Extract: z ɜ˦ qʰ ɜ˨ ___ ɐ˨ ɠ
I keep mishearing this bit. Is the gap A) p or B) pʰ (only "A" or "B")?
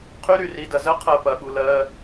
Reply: A